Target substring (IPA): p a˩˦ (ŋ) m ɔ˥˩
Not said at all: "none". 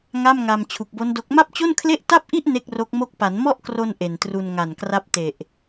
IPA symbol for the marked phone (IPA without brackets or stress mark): n